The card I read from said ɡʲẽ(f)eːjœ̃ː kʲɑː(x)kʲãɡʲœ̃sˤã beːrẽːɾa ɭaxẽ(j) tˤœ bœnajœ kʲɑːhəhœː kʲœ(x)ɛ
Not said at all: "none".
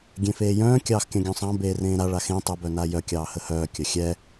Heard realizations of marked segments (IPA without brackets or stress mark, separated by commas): f, x, none, xʲ